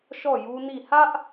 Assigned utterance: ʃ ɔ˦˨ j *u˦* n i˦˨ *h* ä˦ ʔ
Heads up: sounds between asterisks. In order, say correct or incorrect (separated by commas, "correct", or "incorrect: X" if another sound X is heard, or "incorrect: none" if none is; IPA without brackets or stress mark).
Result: correct, correct